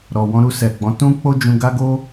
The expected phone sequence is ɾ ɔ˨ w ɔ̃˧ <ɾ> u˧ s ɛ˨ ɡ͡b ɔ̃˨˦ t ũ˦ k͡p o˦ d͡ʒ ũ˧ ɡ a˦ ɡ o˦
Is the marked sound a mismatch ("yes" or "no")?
no